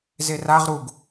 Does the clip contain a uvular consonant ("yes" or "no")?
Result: yes